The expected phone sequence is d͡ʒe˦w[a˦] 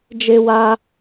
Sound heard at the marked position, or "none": a˦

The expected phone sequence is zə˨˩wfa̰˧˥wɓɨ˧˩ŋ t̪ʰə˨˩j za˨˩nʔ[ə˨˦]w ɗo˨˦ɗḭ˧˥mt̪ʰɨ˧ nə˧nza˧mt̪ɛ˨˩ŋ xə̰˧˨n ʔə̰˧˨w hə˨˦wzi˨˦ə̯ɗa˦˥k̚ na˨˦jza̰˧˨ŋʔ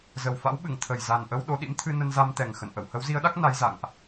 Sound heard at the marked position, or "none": ə˧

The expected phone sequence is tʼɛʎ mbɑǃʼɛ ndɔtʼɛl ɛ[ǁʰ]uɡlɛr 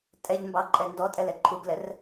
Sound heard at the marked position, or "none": ǃʰ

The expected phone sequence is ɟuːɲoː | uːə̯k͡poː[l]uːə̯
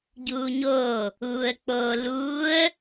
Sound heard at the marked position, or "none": l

